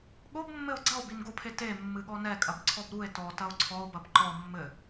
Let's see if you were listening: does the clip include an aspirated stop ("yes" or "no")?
yes